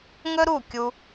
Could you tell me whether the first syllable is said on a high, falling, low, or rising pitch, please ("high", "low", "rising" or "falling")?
high